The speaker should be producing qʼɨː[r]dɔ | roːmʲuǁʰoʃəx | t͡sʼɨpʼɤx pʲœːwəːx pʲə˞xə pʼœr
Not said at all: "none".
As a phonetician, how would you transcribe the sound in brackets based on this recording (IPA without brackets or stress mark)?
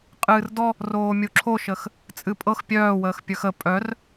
r